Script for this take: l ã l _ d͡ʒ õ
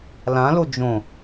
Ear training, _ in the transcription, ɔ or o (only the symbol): o